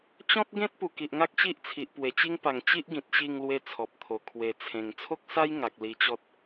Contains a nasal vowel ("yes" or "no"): yes